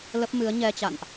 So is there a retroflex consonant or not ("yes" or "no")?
no